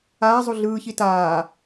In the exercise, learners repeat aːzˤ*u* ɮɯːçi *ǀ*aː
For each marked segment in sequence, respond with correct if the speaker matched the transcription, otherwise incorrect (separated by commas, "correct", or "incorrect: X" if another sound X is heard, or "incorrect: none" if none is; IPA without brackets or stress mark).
correct, incorrect: t